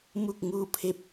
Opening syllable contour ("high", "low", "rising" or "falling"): falling